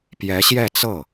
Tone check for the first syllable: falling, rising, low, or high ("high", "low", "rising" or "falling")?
rising